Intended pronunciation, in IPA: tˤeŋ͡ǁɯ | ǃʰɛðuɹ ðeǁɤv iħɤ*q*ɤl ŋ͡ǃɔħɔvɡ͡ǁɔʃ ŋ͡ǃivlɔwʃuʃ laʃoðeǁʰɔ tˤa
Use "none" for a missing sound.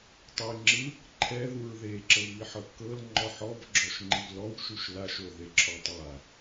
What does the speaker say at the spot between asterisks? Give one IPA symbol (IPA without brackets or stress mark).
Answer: kː